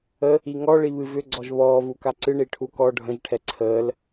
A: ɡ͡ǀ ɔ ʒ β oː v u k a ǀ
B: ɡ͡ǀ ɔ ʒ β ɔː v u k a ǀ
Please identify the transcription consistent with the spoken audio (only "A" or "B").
B